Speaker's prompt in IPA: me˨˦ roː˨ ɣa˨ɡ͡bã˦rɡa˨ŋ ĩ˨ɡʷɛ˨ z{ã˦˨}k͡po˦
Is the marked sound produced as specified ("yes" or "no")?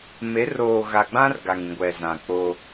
no